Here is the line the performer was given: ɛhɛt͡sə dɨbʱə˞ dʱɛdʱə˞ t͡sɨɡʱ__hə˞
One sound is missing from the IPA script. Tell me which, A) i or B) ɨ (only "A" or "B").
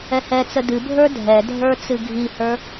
A